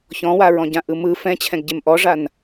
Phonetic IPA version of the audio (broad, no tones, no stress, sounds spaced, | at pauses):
ç ɔ̃ w a ɹ ɔ̃ ɟ ã ʔ ɯ m ɯ f ɛ̃ t͡ɕʰ ɛ̃ ɡ ɟ e m ʔ ɔ ʐ a n